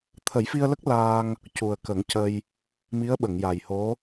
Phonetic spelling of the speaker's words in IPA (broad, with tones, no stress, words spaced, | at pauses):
t̪ʰə˨˩˦jfi˧ə̯lə˦˥k̚ laː˧ŋ | cu˨˩ə̯kə˨˩˦ŋcə˧j | mi˧˥ə̯ɓə˨˩˨ŋja˨˩jho˧˥